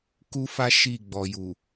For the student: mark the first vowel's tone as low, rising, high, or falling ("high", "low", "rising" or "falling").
high